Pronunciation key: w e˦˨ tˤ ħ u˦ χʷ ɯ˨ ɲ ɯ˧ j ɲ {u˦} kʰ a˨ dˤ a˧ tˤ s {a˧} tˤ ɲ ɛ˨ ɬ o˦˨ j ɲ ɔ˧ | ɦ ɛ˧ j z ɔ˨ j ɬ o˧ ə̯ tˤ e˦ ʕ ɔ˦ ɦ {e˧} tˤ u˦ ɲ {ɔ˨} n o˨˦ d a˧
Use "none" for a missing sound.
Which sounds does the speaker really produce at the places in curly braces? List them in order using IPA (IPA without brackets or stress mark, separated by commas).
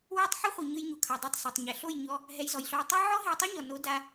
u˨, a˨, e˧, ɔ˨